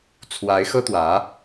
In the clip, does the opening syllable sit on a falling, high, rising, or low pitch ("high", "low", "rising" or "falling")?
rising